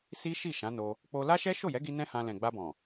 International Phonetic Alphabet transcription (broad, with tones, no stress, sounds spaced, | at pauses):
s i˦ ʃ i˦˨ ʃ ã˨˦ n o˧ | k͡p o˧ l a˦ ʃ ɛ˦ ʃ o˦˨ j ɛ˨˦ ɡ i˧ n ɛ̃˦ h ã˧ l ɛ̃˨ ɡ͡b a˧ b ɔ̃˨